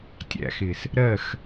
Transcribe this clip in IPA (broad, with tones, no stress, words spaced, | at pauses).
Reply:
tʲæ̰˨xɪ˨s | ɾɜ˦˨x